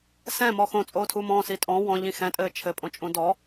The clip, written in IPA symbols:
s ɛ̃ m ɔ x õ t͡sʼ oː tʰ u m ɔ̃ s i tʼ ɔ̃ w ɔ̃ ʎ ĩ x ɛ̃ tʼ ɘː t͡ʃʰ ɘ pʼ õ t͡ʃʼ ũ d ɔ

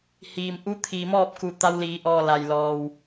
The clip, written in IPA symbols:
h iː˩ m ʔ u˧˥ t̪ʰ iː˩ m ɔː˥˨ p̚ k u˧˩ t̪ a˧ w l iː˩˧ ʔ ɔː˧˩ l a˩ j l ɔː˩ w

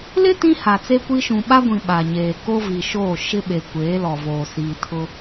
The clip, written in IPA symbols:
l ɪ˦ t ĩ˦ h a˨ t͡s e˦ kʷ i˦ ʃ ũ˨ ɓ a˦ ɡʷ ĩ˨ ɓ a˨ ɲ eː˨ k o˦ v i˨ ʃ oː˦˨ ʃ ɪ˦ ɓ e˨ kʷ eː˨˦ l ɔ˨ v oː˨ s i˨ tʰ ʊ˦

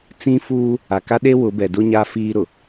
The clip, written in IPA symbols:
t͡s ĩ˦ f uː˦ | a˨ k a˦ ɗ e˦ w ʊ˨˦ b ɛ˨ d ʊ˦ ɲ a˦ f iː˦ ɾ ʊ˨

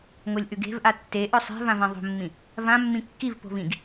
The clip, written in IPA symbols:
ŋ o lʲ ʔ ʉ ɡ e̤ v ʔ a tː e ʔ ɵ sˤ e̤ v ã v ẽ ðˤ o̤ mː ĩ | v ã mː ĩ kː i v p o̤ v ĩ ɡ

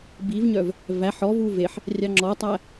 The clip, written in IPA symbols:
b i v ɲ œ v | v æ ħ ɔ v u v e ħ | rʲ ɑ ŋ͡ǁ ɔ tˤ æ

